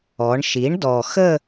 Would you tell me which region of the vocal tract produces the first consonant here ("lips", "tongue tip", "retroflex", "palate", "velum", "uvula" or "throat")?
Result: retroflex